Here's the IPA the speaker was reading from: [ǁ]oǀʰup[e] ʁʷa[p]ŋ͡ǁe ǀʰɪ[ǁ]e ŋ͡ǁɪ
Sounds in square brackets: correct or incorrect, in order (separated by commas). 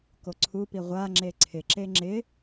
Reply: incorrect, incorrect, incorrect, correct